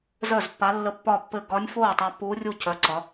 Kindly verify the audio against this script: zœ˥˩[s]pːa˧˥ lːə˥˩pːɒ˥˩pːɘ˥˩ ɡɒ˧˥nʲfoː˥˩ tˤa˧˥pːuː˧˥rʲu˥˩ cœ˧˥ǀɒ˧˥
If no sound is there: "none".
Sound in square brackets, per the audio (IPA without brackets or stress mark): z